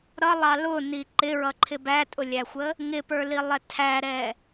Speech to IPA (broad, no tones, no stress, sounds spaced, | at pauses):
ɾ ʌ lˠ ɑ l ʊ n i ǃ ɪ ɹ ʌ ǃʰ ɪ b æ tʼ ʊ lʲ æ xʷ ə | ŋ ɪ p ə˞ l i lˠ ɛ tʰ æ ɾ ɛ